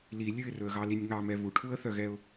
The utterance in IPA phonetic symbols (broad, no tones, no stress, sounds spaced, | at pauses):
l i lʲ ʉ ɪ̯ r ɵ ə̯ ɣ ɑ l i nʲ ŋ ɑ m ɛ β u ʈʰ u ə̯ θ œ ɣ ɛ ʊ̯